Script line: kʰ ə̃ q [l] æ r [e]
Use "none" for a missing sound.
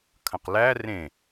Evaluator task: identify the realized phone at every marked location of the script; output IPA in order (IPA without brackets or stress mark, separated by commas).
l, ẽ